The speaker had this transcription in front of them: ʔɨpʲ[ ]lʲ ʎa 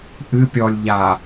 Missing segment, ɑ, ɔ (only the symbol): ɔ